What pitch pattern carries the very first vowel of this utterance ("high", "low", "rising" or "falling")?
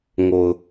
low